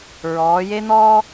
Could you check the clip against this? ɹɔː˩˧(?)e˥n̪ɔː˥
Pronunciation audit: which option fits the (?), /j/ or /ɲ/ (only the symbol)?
j